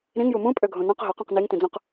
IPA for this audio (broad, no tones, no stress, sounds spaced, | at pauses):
ɾ ĩ ŋ j u m ũ pʼ ø ɡʱ õ n ɔ̃ q ɦ ɔ q õ q n i ŋ t ĩ d͡z õ q